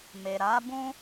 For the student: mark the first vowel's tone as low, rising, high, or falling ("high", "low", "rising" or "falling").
low